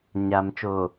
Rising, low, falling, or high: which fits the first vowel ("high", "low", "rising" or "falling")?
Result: low